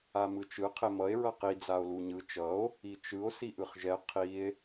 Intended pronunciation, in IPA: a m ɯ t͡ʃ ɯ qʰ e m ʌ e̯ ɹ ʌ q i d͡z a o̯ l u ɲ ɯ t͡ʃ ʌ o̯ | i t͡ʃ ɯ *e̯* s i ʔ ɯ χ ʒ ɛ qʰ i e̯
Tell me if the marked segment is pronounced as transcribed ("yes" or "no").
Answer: no